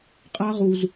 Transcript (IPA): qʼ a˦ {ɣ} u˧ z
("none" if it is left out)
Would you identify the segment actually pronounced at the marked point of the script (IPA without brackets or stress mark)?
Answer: ʁ